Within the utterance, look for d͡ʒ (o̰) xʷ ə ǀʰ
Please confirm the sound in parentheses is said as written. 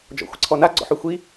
no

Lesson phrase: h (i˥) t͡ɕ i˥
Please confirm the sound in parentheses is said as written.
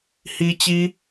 yes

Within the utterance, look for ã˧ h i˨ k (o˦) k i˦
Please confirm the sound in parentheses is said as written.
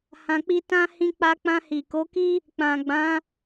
no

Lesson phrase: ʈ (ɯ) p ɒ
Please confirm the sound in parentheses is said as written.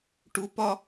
no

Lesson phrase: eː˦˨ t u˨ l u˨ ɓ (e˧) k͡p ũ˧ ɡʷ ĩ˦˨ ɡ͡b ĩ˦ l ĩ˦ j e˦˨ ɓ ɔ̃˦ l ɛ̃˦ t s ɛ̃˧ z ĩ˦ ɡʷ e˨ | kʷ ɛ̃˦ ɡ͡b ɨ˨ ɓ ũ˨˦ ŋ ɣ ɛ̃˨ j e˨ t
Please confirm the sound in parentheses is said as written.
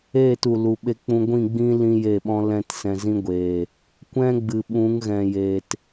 yes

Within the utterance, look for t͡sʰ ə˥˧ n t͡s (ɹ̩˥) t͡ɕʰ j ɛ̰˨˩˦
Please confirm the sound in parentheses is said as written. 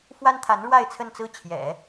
no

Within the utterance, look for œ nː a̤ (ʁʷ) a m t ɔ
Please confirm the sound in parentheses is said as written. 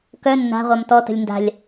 yes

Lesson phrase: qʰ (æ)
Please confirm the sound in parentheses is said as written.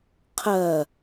no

